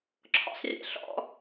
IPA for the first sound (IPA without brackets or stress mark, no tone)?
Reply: ǁʰ